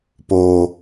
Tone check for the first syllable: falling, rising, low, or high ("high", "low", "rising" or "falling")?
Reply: low